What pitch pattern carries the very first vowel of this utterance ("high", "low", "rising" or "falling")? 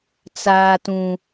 high